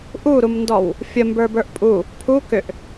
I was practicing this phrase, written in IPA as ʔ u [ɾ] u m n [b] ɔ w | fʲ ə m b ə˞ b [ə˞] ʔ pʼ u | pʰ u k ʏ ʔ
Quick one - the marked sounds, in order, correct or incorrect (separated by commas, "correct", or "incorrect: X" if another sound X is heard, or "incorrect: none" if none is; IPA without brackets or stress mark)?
correct, incorrect: d, correct